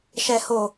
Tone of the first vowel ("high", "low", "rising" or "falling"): low